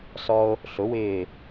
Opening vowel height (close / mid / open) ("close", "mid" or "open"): mid